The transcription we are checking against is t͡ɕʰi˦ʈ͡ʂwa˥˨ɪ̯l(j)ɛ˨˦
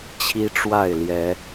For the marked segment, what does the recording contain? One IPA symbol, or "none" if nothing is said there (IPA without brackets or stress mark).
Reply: j